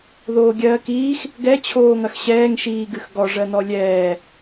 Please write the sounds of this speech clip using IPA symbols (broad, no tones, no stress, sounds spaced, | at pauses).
ð oː ɡʲ ɜː k iː x | ɡ ɛ t͡ɕʰ oː ŋ ɐ x ɕ ɛː ŋ ʃ iː ɡ ɨ x ɡ ɔ ʐ ɜ n ɔ lʲ ɛː